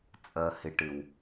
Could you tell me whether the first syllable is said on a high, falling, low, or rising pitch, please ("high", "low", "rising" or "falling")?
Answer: low